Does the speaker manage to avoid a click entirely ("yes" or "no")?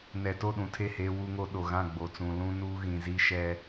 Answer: yes